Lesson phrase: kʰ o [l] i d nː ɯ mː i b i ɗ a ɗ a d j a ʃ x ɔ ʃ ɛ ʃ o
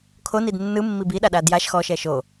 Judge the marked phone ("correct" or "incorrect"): incorrect